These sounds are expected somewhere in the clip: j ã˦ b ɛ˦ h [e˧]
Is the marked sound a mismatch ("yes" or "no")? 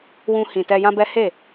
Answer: yes